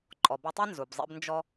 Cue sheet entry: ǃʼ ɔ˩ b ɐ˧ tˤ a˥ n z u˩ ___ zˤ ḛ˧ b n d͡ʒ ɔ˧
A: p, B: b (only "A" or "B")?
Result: B